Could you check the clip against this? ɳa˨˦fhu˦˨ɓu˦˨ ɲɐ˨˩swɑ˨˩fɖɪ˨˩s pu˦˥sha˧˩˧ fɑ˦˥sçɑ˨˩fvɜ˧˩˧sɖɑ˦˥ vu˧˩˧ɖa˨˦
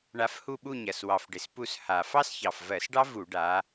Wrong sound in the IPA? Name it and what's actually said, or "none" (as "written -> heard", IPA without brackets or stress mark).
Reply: none